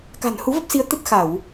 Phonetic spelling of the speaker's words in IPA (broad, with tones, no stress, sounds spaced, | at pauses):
k a̤˨˩ n h u˨˦ v ə˦˥ p̚ s i˨˦ ə̯ t̪ ə˦˥ t̚ x a˧˩˨ w